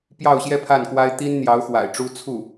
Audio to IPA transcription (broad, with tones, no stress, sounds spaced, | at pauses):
p j ɑ˥˧ ʊ̯ ɕ j ɛ˥˧ pʰ a˥˩ n k w a˥ ɪ̯ t̪ i˥ n n̪ j ɑ˧˥ ʊ̯ x w a̰˨˩ ɪ̯ ʈ͡ʂ u˥ t͡sʰ u˥˩